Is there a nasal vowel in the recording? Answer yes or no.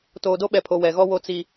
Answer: no